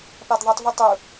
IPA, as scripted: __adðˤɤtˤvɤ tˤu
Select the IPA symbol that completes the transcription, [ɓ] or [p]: p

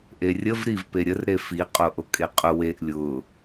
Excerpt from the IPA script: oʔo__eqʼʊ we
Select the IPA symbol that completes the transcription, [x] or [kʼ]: kʼ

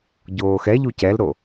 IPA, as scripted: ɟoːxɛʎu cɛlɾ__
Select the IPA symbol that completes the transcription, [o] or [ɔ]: o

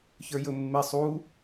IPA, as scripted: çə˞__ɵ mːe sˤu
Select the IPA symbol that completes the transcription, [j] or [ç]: j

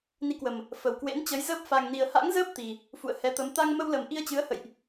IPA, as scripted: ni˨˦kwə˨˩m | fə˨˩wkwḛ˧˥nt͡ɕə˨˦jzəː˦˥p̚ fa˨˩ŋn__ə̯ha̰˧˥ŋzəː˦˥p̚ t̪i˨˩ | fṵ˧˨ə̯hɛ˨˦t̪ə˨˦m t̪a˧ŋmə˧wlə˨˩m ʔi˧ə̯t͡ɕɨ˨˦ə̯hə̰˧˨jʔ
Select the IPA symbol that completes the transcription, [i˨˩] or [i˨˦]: i˨˩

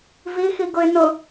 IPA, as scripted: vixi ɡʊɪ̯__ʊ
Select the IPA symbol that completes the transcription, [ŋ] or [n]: n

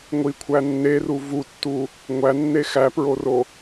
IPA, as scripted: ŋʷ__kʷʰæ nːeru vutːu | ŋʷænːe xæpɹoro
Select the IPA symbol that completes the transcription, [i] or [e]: i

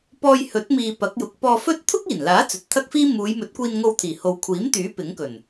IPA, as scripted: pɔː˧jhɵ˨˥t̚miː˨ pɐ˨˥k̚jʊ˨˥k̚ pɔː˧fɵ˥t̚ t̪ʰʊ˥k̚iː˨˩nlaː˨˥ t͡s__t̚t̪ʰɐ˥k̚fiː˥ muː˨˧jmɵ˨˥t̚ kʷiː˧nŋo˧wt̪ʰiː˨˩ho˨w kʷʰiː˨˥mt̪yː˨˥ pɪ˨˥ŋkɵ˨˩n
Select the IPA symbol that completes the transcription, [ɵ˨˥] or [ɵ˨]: ɵ˨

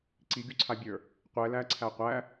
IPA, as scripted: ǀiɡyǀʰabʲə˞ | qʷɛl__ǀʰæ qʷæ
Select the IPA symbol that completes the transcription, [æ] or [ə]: æ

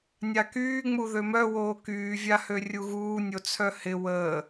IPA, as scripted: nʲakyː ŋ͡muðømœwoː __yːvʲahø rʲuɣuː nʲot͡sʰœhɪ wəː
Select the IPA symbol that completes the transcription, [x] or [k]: k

